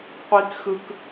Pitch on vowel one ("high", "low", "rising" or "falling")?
high